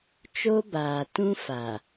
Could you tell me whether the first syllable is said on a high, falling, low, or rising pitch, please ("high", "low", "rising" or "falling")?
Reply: high